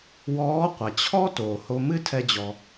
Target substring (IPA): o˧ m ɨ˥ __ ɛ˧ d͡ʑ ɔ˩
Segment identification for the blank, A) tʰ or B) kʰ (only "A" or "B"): A